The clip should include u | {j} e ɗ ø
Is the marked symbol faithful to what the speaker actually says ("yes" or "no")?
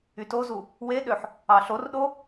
no